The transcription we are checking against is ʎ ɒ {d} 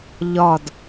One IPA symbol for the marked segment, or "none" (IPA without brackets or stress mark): d